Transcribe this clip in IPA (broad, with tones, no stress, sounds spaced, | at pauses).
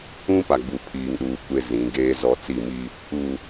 ũ˦ p a˨ ɡ͡b u˨ pʰ iː˨ ŋ ɗ uː˨ kʷ e˦ z ĩ˨˦ ɡ eː˦ z ɔ˦ t͡s i˦˨ m i˦ | u˨